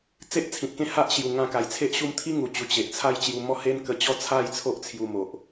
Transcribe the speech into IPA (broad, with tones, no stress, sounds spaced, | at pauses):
t͡s e˦ ʔ t͡sʰ ĩ˨ t̚ k ẽ˥˧ h a˦ ʔ ɕ j u˨˩ ŋ ã˧ k a˨˩ j t͡sʰ e˦ ʔ ɕ u˥˧ m t̪ʰ i˦ ŋ u˨˩ t͡ɕ u˨˩ t͡ɕ e˨ ʔ t͡sʰ a˦ j t͡ɕ j u˧ m ɔ˥˧ h e˦ n k ə˧ t͡ɕ ɔ˥˧ t͡sʰ a˥˧ j t͡sʰ o˦ ʔ t͡sʰ j u˧ m o˨ ʔ